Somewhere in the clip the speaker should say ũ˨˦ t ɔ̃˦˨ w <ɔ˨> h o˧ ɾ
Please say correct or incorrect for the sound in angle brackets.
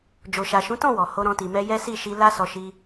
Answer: correct